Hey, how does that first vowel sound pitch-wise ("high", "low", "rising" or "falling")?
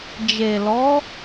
low